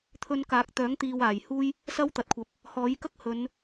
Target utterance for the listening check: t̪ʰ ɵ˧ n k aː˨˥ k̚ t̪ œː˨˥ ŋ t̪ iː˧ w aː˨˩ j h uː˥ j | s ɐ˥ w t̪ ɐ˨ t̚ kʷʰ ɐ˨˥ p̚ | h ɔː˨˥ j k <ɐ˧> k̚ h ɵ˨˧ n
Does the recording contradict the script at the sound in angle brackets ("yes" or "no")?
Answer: yes